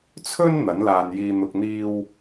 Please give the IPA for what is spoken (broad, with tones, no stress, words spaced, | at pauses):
t͡sʰɵ˥n n̪ɐ˨˥nlaː˧njiː˧ n̪ʊ˨k̚n̪iː˧w